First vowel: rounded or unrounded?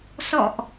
rounded